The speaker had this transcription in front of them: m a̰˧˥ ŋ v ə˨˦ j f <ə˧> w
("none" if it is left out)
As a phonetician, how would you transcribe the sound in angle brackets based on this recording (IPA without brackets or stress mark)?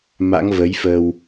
ə˧